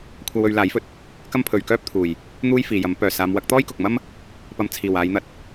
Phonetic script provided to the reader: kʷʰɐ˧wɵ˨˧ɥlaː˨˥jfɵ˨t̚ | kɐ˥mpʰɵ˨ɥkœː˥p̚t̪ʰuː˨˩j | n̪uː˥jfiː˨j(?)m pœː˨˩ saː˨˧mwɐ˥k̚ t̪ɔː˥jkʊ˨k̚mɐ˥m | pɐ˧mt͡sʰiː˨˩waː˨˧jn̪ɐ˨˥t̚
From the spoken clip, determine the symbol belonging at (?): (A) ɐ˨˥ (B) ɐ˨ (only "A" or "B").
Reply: A